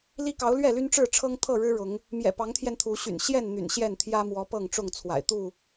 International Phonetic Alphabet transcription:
li˦kɑ˨˦ʊ̯ lɥɛ˥˨ly˦nʈ͡ʂɻ̩˥˨ʈ͡ʂʰɤ˦ŋ t̪ʰɤ˥˨ɻɻ̩˦ ɻʊ˨˦ŋ | mjɛ̰˨˩pɑ˨˦ŋt̪ʰjɛ˧n t̪ʰu˨˦ɕy̰˨˩n ɕjɛ˥˨n n̪y̰˨˩nɕjɛ˥˨nt̪ʰjä˦ mwɔ˨˦ pɤ˥˨ŋʈ͡ʂʊ˥˨ŋ t͡sʰwa̰˨˩ɪ̯ t̪u˥˨

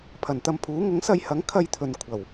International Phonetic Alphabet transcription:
pʰɐ˨˩nt̪ɐ˧mpʰuː˨˥ ŋʊ˨˥ŋsɐ˧jhɐ˨˥ŋ kʰɐ˧jt̪ʰɵ˨n kʷʰɐ˨˩w

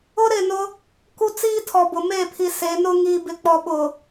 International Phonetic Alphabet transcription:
ʊ˦ɾɪ˦˨nʊ˦ | ku˦t͡siː˦tʰɔ˨bʊ˨ me˦˨pʰi˨ se˨˦nʊ˦ ŋiː˨bɪ˨k͡pɔ˨ ɓʊ˨

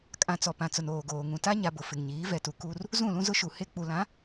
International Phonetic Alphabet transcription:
kʼã˨t͡sɔ˨pã˨t͡sʊ˨n oː˨ɡoː˨ ŋũ˨ta˦ ɲa˨bʊ˨ fɪ˨ŋɲiː˨˦ vɛ˨tu˨ ku˦r | zũ˦˨lũ˦zʊ˦ʃu˨ he˦k͡pu˨lã˨˦

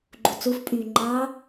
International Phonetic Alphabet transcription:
ɡ͡ǃut͡sufpʼyː ŋ͡ǃɑ

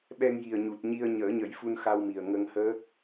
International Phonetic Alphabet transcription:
ɓɛ˧ŋji˨˩ə̯ɲu˨˩t̚ ɲi˧ə̯ɲəː˨˩˦ɲə˨˩˦j fu˧nxa˧wmi˨˩ə̯ ŋə˧ŋhəː˦˥k̚

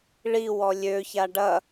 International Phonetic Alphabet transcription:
ɭi wɔlʲøça ɖɐ

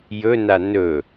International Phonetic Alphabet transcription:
jɵna nɵ

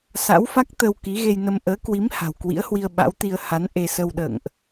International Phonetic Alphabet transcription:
sa̰˧˥wfa˦˥k̚ t̪ə˧w ki˨˦ɣe˧jnə˧m ʔəː˨˦kwi˨˦m ha̤˨˩wkwḭ˧˥ə̯hwi˧ə̯ ɓa̰˧˥wt̪i˧ə̯ ha˨˦n ʔe˧sə˧wɗə̰ː˧˨ŋʔ

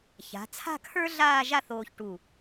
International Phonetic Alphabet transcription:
ça̤˩˧t͡sʰa̤˥˧kʰə˞˥ ɮaː˥˧ʒa˥˧θoː˧çʈu˧˩

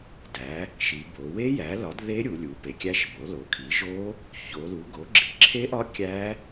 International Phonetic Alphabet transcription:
dæ˩˥ | ʃi˩˧bo˩˧ we˦˥jæ˩˥lɒ˩˥d ðe˦˥ɾʲu˩˧lʲu˩˧ pe˩˥kʲæ˦˥ʃ bo˩˥lo˩˥ kʰi˩˥ʒo˦˥ | ço˩˧ lu˩˥ɡo˩˥ɡ͡ǁi˩˧ ǁʰe˦˥ʔɒ˦˥ kʲæ˦˥

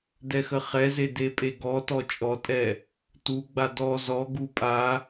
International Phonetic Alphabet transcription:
dɛxəχɛze depʼeɡɔtɔ t͡ʃʼɔtʼɛ | tuɡ͡ba dɔ zɔɡu pʼa

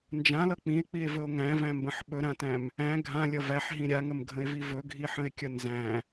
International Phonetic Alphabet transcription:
nd͡ʒãlʌ k͡pĩe̯k͡pie̯vɵo̯ ŋæ̃væ̃mbə̃ħ ɓɵɾãtæ̃m | æ̃ ɡʱãlʲʌ væħɦĩ ɾʲaŋəmɡʱə̃e̯vi vɵɡʱiħə̃e̯kʲʌ nzæ̃

